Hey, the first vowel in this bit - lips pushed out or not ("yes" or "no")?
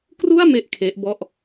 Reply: yes